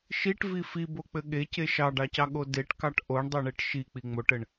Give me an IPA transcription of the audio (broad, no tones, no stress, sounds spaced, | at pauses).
ʃ i ʈ v i f i b o k͡p ɘ ɠ e c e ʃ ɑ ɖ ɑ c ɑ ɠ o d e ʈ k ɑ ʈ ʔ o ɳ dˤ o ɳ e ʈ ʃ i k͡p i ŋ͡m o ʈ ɘ ɳ